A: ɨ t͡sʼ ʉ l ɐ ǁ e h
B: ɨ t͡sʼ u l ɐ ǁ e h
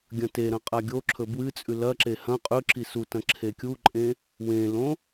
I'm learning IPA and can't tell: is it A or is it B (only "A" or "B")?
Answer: A